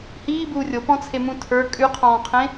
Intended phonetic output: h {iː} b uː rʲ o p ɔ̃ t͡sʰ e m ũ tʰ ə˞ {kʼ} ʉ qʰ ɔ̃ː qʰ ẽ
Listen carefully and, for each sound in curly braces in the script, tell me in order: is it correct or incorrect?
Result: correct, correct

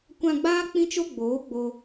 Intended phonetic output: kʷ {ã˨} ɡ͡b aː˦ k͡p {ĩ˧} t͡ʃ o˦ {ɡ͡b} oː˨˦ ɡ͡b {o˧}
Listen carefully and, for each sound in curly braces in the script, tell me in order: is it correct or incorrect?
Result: incorrect: ã˧, incorrect: ĩ˦, correct, correct

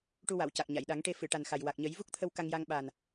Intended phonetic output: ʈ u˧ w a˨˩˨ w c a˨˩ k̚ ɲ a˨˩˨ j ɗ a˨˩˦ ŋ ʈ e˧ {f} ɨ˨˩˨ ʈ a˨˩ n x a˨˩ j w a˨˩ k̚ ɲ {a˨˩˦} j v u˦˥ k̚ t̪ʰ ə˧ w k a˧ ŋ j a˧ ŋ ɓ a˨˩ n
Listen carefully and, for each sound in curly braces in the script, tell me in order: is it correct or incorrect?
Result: correct, incorrect: ə˨˩˦

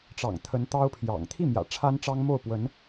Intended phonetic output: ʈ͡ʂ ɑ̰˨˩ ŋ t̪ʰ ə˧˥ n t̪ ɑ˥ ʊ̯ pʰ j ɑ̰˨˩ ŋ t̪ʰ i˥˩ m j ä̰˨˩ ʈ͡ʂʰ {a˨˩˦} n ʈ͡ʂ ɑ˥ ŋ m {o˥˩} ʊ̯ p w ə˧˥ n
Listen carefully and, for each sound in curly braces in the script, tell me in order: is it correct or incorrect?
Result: incorrect: a˥, correct

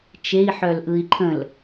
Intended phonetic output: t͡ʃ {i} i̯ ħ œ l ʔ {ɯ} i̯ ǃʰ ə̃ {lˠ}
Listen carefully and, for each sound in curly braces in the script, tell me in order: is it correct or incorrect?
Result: incorrect: e, correct, incorrect: l

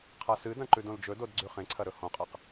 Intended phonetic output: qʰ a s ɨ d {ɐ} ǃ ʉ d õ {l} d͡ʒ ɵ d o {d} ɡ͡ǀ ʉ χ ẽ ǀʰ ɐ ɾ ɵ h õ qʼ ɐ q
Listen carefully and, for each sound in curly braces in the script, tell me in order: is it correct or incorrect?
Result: incorrect: ɐ̃, correct, correct

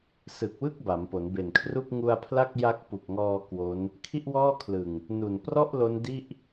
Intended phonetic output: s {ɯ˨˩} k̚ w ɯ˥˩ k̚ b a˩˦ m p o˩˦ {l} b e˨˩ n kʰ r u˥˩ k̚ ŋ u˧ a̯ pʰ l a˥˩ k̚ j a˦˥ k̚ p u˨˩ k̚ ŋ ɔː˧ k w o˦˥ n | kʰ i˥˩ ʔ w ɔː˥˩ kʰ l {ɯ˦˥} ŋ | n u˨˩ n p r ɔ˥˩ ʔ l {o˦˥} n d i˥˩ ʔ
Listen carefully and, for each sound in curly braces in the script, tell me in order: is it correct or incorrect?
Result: correct, incorrect: n, incorrect: ɯ˨˩, correct

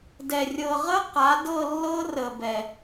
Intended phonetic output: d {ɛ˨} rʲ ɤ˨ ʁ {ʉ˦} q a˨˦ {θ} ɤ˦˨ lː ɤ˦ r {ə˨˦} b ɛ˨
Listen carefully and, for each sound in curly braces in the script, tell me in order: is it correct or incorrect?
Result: correct, incorrect: ə˦, incorrect: d, incorrect: ə˨

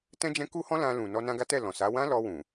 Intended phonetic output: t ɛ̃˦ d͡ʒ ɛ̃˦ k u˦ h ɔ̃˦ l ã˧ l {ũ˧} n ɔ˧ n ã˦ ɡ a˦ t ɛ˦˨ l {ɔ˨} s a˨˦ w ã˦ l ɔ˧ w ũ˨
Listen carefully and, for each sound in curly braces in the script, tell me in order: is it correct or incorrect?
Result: incorrect: ũ˨, incorrect: ɔ̃˨

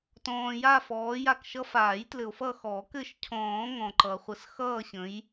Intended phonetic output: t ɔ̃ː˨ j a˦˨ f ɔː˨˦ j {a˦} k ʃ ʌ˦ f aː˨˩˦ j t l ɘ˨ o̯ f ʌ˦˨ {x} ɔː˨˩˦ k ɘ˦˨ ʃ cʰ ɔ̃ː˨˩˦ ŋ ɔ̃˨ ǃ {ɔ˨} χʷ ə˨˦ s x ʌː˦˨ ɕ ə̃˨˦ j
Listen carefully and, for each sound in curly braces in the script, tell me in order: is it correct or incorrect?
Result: incorrect: a˦˨, correct, incorrect: ʌ˨

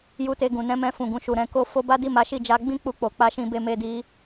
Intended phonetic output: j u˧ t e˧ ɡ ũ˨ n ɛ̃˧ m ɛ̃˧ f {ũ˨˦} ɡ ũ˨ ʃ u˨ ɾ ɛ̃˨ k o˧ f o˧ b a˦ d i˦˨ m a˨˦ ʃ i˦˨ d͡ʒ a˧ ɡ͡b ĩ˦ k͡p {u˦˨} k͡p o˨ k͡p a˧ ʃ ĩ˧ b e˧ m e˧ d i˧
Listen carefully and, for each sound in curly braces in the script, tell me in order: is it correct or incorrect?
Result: incorrect: ũ˨, incorrect: u˧

